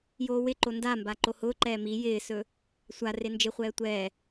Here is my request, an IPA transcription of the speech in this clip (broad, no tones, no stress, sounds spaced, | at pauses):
j oː w ɪ ǃ o n d a m b a ǃ o h ʊː ǃ ɛː m i j ɪː s ɵ | sʷ a r e n d͡ʒ ɪ χʷ ɛː tʷ ɛː